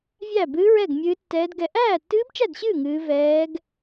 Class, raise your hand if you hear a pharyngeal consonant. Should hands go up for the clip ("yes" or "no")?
no